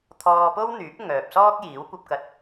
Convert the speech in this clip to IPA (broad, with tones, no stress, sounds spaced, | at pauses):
t̪ʰ ɔː˧ p o˥ w n̪ yː˨˥ p̚ ŋ œː˨ p̚ s ɔː˥ k̚ j iː˨˥ w kʷ ɐ˧ p̚ k ɐ˧ t̚